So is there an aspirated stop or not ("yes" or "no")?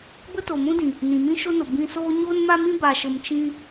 no